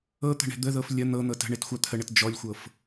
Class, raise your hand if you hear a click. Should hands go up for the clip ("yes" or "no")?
no